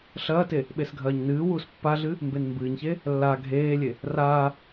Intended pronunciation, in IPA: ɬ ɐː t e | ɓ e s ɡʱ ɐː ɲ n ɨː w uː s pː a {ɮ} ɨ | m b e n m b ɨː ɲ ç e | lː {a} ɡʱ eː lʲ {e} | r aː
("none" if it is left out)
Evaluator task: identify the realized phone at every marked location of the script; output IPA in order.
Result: ɮ, a, e

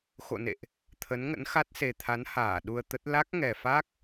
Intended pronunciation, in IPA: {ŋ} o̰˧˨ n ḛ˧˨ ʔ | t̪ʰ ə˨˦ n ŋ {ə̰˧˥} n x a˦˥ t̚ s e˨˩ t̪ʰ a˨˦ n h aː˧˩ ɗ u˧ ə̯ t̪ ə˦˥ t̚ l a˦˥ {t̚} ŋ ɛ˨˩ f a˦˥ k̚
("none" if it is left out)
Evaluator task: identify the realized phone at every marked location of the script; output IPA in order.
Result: x, ə̰˧˥, k̚

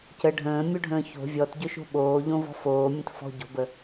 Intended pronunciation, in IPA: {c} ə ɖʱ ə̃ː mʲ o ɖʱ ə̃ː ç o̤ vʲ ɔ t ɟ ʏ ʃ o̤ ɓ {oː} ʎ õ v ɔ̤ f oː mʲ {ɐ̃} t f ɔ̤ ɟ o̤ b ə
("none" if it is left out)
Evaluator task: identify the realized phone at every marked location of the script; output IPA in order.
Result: c, oː, ə̃

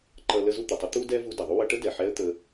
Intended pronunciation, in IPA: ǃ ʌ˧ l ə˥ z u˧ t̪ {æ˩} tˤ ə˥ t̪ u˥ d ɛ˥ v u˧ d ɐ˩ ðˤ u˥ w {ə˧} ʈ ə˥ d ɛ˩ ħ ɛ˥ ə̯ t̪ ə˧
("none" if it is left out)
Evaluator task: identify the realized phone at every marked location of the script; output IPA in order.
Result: ə˩, ʌ˧

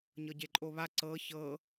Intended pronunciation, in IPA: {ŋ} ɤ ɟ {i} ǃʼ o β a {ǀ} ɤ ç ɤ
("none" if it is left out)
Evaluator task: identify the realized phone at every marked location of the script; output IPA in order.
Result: ɲ, e, ǀ

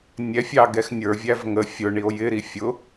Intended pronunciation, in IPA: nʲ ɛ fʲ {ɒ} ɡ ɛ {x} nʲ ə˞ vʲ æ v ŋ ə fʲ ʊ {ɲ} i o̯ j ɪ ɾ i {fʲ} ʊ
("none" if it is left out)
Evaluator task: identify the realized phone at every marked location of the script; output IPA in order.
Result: ɑ, x, ɳ, fʲ

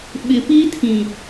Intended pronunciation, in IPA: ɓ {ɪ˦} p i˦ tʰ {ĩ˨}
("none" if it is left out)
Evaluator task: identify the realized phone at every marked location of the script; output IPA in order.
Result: ɪ˨, ĩ˨

